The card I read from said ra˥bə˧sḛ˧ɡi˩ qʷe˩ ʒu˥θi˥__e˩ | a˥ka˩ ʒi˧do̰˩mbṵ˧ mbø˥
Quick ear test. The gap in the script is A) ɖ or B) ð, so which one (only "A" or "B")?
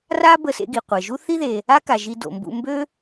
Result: B